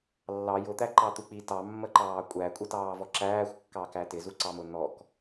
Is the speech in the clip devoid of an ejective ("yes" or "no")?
no